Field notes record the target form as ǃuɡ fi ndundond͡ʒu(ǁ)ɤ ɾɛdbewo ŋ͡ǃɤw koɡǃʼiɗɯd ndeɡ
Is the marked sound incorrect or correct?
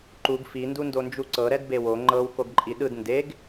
incorrect: ǀ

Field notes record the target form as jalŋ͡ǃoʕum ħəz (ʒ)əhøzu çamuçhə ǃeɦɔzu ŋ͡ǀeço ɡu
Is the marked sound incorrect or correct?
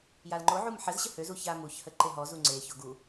incorrect: ɕ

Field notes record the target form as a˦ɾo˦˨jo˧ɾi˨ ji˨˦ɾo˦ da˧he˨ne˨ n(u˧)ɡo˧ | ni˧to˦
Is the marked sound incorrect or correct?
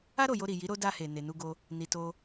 correct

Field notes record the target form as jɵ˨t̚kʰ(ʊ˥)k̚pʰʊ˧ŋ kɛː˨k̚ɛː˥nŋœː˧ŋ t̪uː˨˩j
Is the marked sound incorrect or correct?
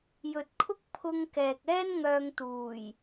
correct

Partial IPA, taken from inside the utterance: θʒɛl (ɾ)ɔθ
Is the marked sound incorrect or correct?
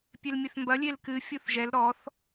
correct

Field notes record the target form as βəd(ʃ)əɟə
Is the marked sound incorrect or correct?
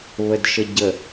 correct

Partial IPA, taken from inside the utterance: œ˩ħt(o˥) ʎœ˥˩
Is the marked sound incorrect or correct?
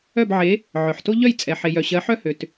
correct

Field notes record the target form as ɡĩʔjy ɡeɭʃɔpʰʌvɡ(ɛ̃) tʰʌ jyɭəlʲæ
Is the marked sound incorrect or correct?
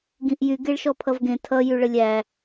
incorrect: ẽ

